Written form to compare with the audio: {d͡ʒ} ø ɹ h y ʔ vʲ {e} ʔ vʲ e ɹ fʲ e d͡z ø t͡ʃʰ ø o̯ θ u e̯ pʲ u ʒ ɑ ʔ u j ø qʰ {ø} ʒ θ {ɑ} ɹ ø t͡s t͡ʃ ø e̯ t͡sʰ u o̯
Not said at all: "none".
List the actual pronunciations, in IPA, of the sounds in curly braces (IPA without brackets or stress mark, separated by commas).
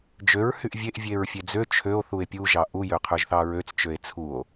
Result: d͡ʒ, e, ø, ɑ